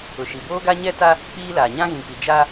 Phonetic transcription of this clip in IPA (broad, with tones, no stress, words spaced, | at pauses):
ʊ˨ʃi˨boː˦ɡa˦ ɲɛ˦ta˦ | k͡piː˦laː˨ ɲã˦ɣĩ˨k͡pi˨ d͡ʒa˦